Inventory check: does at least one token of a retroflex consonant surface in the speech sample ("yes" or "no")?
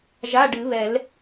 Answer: yes